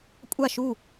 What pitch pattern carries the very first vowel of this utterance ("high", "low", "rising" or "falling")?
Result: falling